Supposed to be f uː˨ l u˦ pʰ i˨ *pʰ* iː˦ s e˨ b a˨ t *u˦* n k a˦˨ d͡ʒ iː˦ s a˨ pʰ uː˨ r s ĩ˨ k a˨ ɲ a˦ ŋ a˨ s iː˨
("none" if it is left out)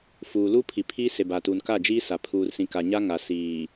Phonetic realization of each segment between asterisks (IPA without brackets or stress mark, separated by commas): pʰ, u˨